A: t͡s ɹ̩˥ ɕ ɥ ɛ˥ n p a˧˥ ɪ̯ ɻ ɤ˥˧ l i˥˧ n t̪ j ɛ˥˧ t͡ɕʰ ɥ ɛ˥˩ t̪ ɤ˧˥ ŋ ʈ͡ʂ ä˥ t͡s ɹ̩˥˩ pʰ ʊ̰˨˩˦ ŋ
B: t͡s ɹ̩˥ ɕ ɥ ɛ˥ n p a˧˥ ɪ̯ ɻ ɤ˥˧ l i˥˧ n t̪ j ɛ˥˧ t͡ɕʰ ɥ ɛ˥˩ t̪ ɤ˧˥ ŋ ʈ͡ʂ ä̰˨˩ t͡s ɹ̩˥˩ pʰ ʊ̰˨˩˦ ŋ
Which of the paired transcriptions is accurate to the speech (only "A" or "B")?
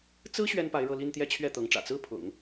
B